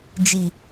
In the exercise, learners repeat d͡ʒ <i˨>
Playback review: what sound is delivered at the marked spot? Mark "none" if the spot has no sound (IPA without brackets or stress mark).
i˨